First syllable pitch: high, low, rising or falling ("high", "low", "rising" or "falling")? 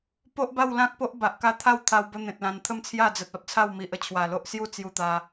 high